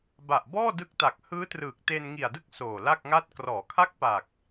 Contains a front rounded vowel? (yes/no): no